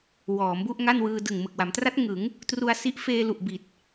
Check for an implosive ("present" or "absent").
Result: absent